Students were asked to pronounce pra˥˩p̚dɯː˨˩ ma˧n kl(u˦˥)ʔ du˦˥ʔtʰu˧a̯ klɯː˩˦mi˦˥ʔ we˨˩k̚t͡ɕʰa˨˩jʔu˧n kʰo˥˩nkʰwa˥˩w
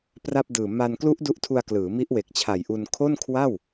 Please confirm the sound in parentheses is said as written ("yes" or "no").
yes